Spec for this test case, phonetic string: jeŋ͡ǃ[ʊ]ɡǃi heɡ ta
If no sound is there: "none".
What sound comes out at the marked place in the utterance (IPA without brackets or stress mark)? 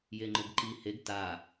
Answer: ʊ